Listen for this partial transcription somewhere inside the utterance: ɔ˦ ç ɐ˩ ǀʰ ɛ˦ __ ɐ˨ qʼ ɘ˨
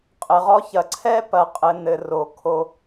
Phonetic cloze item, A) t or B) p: B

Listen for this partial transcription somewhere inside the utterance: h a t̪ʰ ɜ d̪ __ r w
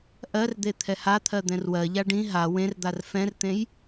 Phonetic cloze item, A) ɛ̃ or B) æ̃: A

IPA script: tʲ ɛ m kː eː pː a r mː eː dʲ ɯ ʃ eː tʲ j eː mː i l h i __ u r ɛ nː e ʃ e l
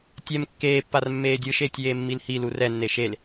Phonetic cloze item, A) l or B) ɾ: A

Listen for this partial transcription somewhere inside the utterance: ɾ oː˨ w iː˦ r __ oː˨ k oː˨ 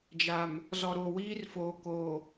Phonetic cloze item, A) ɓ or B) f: B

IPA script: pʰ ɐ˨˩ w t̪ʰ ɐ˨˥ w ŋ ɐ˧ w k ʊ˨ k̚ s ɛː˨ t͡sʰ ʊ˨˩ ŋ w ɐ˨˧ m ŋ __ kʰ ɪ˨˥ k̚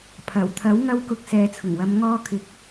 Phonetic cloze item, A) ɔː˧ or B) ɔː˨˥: A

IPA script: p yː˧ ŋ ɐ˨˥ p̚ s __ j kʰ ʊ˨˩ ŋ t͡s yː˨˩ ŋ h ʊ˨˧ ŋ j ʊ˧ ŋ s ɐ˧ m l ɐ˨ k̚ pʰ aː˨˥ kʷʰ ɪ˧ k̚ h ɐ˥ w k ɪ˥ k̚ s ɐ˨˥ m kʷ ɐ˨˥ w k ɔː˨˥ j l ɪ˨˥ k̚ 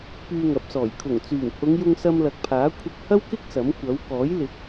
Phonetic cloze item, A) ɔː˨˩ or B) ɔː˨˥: A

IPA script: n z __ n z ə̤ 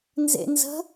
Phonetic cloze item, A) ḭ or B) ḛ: B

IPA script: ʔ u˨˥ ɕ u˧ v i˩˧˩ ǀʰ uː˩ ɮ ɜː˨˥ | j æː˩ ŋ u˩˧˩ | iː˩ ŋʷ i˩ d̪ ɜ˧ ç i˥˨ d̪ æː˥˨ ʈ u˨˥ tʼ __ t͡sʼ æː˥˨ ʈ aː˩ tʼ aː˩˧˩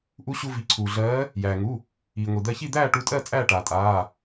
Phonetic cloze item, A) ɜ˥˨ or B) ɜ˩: A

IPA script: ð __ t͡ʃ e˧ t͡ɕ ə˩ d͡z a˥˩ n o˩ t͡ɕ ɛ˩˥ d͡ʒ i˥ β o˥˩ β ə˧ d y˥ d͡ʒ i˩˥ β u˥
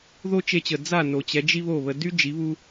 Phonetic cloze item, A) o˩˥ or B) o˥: B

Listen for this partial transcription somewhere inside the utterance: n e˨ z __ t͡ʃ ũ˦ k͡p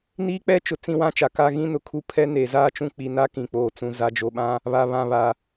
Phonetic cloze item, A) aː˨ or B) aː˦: B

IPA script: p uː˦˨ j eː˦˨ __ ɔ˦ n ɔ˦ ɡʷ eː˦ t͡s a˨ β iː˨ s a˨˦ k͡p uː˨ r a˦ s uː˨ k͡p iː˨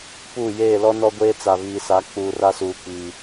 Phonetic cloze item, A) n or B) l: B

